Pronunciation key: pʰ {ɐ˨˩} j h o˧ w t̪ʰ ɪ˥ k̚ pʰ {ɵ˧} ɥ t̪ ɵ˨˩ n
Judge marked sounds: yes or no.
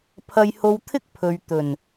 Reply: no, no

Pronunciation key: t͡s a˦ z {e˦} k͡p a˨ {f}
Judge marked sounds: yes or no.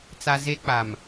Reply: yes, no

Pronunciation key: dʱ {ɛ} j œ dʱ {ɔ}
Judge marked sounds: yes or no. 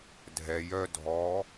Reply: yes, yes

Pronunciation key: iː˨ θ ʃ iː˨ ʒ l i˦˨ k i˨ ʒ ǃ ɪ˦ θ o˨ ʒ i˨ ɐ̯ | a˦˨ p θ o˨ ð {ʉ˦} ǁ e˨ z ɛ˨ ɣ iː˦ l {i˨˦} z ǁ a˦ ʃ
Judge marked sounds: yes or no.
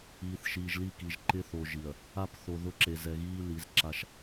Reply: no, yes

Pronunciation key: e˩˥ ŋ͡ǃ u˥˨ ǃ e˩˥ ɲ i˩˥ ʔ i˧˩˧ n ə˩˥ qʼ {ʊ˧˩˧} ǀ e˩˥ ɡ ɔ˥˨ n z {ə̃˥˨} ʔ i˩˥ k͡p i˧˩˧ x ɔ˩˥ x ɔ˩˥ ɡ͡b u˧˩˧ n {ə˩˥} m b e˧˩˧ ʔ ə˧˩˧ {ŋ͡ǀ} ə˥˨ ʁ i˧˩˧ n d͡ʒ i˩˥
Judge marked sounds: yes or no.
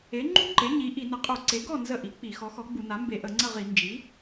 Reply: no, no, no, yes

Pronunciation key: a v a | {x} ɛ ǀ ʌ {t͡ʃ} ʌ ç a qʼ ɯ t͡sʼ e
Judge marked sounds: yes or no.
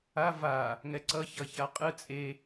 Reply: no, no

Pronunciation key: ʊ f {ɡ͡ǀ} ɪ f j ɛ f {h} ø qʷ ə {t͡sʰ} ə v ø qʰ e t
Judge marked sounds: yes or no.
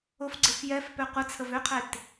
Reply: yes, no, yes

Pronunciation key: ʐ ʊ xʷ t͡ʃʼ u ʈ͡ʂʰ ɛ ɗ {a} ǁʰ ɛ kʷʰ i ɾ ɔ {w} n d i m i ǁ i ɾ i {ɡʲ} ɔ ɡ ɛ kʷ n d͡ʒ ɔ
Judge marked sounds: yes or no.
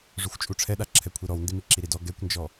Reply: yes, yes, no

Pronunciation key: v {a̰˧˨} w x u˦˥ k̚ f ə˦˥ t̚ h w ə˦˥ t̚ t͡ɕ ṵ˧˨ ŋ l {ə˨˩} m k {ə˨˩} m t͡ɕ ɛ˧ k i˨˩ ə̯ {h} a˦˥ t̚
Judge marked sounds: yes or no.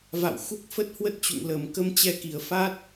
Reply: yes, yes, no, no

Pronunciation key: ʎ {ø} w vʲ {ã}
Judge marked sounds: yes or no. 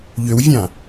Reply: yes, yes

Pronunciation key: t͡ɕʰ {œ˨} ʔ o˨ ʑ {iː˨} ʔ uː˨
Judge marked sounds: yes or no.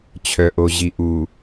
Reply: yes, no

